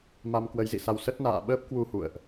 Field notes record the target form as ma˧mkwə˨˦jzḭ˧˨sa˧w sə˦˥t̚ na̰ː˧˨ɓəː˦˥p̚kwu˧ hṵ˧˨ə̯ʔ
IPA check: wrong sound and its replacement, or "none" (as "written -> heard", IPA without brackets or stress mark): none